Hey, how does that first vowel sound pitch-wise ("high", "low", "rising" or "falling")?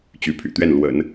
rising